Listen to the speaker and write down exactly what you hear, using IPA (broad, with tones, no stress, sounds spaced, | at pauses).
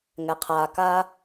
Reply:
ŋ ɛ˩ qʰ aː˩ k a˧